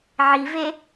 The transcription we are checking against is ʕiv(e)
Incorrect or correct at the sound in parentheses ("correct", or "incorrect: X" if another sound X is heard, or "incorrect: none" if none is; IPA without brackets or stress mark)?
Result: correct